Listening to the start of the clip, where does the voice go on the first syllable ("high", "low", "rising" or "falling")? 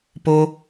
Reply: high